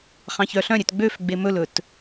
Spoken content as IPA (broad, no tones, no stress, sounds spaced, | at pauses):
χ ɑ̃ ç œ ɬ œ̃ ɾʲ ø t ɡ͡b ø f ɡ͡b e m ɵ l ɵ t